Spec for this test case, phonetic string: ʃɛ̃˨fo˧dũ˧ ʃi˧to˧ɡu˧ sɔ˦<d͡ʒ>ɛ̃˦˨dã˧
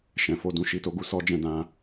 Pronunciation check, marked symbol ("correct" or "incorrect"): correct